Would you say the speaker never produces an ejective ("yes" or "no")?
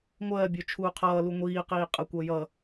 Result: no